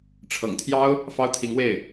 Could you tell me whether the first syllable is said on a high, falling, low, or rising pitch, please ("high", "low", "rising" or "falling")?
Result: low